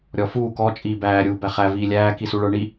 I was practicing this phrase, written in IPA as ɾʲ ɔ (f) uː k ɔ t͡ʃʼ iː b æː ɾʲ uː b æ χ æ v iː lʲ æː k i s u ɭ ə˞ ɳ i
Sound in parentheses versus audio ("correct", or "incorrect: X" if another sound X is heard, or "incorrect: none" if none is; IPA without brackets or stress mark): correct